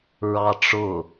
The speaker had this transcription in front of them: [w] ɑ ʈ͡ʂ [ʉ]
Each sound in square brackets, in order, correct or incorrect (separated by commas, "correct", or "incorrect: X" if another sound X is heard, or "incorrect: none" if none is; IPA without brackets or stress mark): incorrect: ɹ, incorrect: ʊ